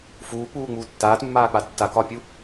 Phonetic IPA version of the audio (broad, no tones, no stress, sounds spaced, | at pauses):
f uː k͡p uː ŋ͡m uː tː aː t mː aː k͡p a tː a k ɒ pʲ u